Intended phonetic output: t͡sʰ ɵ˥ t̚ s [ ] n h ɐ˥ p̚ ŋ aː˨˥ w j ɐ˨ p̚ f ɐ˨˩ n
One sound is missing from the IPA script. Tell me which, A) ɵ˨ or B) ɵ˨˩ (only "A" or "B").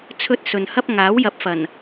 A